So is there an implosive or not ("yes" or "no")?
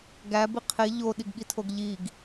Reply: yes